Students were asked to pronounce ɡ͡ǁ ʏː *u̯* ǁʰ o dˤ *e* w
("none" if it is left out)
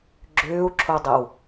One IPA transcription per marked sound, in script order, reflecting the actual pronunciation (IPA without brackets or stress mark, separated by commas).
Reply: u̯, e